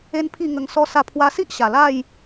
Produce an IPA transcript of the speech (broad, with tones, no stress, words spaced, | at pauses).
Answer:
e˦npʰi˥˧ ŋə˧ŋsɔ˦ sa˥˧ pʰwa˧si˦ʔ ɕa˨˩la˥˧j